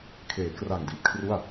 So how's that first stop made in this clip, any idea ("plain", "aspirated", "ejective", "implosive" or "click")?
aspirated